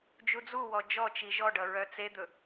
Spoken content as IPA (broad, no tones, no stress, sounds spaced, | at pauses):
d͡ʒ u d͡z u w ɔ d͡ʒ ɔ t͡ʃ i ʒ ɔ ɖ ʌ ɹ œ t͡s e d̪ ɵ